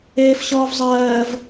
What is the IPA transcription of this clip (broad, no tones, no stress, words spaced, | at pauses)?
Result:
eːfɕɔːvzˤɜːv